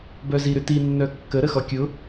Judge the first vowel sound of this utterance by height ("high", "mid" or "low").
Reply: mid